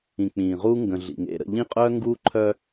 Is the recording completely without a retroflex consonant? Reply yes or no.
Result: yes